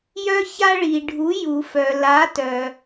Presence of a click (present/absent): absent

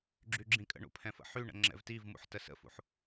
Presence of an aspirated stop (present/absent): present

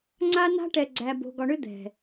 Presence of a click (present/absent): present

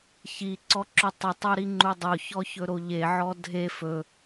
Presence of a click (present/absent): present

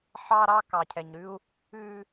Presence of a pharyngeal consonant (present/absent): present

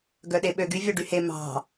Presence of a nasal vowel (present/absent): absent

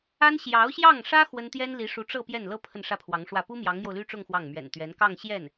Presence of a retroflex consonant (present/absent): present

